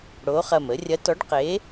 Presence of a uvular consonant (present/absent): present